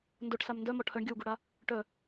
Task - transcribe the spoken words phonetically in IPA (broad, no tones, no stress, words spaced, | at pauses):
ndoʈsam ndœmɔ ʈʰœɳɡʲɔwɡuɽa | ʈœ